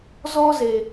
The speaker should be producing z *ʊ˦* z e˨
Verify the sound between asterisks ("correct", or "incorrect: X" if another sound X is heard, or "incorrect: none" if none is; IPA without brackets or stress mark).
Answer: incorrect: ɔ˦